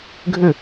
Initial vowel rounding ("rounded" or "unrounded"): unrounded